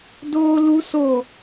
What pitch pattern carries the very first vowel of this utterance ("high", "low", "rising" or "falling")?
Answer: high